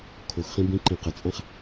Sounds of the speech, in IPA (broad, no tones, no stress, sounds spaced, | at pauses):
kʰ o x χ ĩ b ĩ ǃ ẽ q ə t͡sʼ ã χ